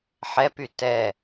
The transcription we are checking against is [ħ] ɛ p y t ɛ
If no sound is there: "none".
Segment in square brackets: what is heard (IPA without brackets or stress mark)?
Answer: ħ